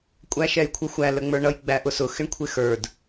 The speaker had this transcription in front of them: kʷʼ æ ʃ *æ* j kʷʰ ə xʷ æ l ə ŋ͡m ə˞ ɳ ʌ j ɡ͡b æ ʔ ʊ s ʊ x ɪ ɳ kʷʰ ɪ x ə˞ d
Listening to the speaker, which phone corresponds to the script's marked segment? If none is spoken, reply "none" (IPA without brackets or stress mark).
ɛ